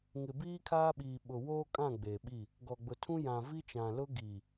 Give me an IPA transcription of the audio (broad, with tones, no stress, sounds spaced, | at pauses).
ŋ ɪ˨ b iː˦ kʰ aː˦ ɓ iː˨ ɓ ʊ˨ w oː˦ kʼ ã˦˨ ɡ͡b eː˨ ɓ i˦˨ | ɡ ɔ˨ ɡ͡b ʊ˨ tʰ ũ˦ j ã˨ v i˦ t͡ʃ ã˨ l ʊ˦ ɡ i˨